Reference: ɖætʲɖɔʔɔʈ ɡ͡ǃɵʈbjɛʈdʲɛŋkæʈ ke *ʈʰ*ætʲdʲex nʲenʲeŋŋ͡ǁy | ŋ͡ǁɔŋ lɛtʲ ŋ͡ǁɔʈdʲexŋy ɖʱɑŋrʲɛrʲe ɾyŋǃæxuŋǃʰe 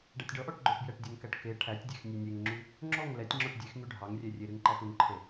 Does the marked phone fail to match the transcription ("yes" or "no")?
no